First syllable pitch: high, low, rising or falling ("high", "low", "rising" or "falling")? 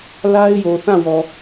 high